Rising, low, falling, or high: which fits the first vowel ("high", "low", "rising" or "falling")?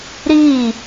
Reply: falling